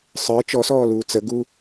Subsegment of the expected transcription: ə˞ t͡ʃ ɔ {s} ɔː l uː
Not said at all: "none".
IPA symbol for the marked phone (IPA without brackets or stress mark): s